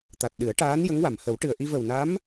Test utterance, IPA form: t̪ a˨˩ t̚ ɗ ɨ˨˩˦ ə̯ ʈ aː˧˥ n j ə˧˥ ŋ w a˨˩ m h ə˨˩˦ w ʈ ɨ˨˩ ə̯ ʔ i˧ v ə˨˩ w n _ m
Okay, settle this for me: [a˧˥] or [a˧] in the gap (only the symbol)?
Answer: a˧˥